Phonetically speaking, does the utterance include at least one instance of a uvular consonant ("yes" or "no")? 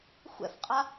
yes